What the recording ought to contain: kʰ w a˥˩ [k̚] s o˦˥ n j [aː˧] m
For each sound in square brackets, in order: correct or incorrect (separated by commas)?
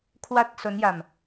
incorrect, incorrect